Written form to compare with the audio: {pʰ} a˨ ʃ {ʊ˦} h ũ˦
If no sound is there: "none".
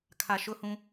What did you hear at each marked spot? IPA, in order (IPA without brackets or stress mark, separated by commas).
kʰ, ʊ˦